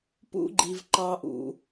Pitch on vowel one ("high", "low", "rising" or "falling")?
high